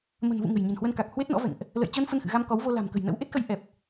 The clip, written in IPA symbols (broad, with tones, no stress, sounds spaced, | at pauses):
m ə̤˨˩ n v ṵ˧˨ ŋ ə̤˨˩ j ɲ ə̤˨˩ n h w ə˧ n k a˨˩ k̚ h w e˦˥ t̚ n ɔ̰˧˥ v ɛ̰˧˨ ŋ ʔ | l ə̰˧˨ j t͡ɕ əː˧ n f ə˧ n x ɨ̰˧˨ ɣ a˧ m k ɔ˨˦ w v o˧ l a̤˨˩ m k ə̤˨˩ j n ə̰˧˥ w ʔ e˦˥ t̚ x ə˧ j ʔ ɛ˨˩ p̚